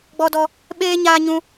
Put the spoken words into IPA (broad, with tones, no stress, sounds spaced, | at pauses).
ɡ͡b ɔ˦ d ɔ˦ | ɓ eː˦ ɲ aː˦ ɲ ũ˦